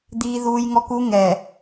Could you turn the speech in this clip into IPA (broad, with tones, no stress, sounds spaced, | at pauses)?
d̪ iː˦ ð uː˦ j ŋ ɔ˦ k u˦ ŋ ɛ˨